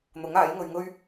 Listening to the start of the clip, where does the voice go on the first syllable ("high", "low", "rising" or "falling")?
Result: rising